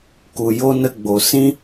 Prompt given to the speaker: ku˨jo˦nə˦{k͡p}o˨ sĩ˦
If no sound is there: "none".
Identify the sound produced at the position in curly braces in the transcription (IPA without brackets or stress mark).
ɡ͡b